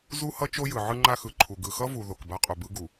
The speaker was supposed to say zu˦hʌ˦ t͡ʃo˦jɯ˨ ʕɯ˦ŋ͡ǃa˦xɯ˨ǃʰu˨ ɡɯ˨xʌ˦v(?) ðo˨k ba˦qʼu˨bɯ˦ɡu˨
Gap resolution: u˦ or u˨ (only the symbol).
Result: u˨